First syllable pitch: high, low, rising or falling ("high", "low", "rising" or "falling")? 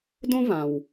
high